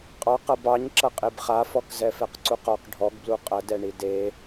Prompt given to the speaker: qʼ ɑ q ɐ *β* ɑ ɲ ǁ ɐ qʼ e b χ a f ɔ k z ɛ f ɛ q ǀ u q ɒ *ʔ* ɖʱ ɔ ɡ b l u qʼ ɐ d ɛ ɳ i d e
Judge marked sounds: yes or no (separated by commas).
no, no